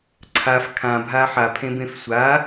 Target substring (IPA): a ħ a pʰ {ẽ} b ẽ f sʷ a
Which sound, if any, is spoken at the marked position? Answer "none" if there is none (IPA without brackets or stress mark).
ẽ